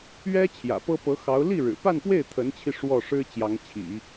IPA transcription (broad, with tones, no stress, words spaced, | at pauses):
ɥɛ˥ t͡ɕʰjä̰˨˩pɤ˥pɤ˧˥xɑ˧˥ʊ̯ li˥˩ɻɻ̩˨˩pa˥˧npwe˥˩ɪ̯ t̪ʰə˧˥nt͡ɕʰi˧ ʂwɔ˥˩ ʂɻ̩˥ t͡ɕjɑ˧˥ŋt͡ɕʰḭ˨˩˦